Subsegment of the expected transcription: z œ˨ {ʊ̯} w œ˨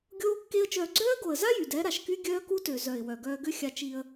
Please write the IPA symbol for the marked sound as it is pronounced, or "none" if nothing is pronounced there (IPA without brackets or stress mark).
ɪ̯